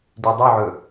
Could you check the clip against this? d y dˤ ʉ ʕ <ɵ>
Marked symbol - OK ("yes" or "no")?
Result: yes